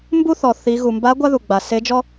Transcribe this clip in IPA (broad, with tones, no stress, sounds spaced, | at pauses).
m b u˥ θ ɔ˩ θ i˩˧ ɣ u˩ m b a˧˥ ɡʷ a˥ ð u˩ ɡ͡b a˩ s e˧˥ d͡ʒ ɔ˥